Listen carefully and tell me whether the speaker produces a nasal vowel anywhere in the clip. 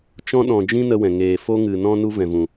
yes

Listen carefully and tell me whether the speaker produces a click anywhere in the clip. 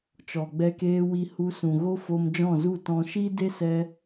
no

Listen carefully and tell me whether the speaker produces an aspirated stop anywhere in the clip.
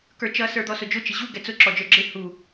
no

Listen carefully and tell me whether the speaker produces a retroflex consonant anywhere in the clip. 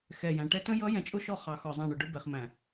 yes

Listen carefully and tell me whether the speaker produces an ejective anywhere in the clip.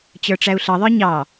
no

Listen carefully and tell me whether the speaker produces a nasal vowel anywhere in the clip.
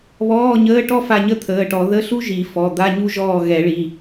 no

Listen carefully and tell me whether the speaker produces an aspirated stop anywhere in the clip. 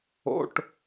no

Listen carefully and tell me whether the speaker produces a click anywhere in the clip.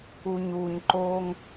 yes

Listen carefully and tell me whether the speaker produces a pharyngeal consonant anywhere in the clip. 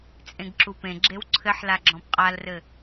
yes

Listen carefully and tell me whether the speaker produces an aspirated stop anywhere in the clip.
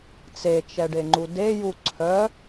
yes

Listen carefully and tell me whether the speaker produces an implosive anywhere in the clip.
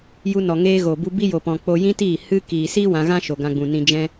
no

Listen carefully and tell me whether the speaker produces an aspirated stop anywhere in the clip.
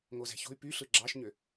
no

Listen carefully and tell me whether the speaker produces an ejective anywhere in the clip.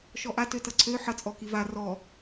yes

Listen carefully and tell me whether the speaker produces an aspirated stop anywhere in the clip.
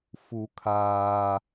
yes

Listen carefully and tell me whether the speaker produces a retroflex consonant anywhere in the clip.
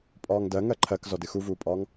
no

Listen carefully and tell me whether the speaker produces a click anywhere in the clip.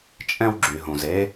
yes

